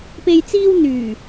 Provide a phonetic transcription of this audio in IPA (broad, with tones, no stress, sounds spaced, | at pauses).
p e˨ j t͡s iː˧ w n̪ yː˨˩